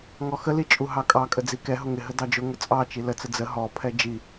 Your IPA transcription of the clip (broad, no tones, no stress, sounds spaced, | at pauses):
ŋ ɔ x ə l i t͡ʃʼ u ɦ ɑ kʼ ɑ kʼ ə d͡z i k ɛ ɦ ʊ ŋ ɪ ɦ ə d ɑ d͡ʒ ʊ ŋ ʊ t͡sʼ ɑ t͡ʃ i l ə t͡s ə d͡z ə ɦ ɔ pʰ ɛ d͡ʒ i